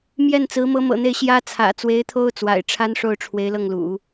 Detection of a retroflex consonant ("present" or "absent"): present